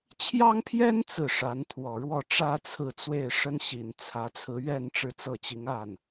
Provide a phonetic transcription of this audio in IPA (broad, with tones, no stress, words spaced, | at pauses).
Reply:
t͡ɕʰjɑ˥ŋpʰjɛ˥n t͡sɹ̩˥˩ʂa˧˥n t̪ʰwɔ˨˩ɻwɔ˥˩ʈ͡ʂä˥ t͡sʰɹ̩˥˧t͡swe˥˩ɪ̯ʂə˥nɕi˨˩n t͡sʰä˧˥t͡sʰɹ̩˧˥ ɥɛ˥˧n ʈ͡ʂɻ̩˥˧t͡sɤ˥˩t͡ɕi˧˥ŋ a˥˩n